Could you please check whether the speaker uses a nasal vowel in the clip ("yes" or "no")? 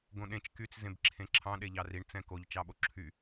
yes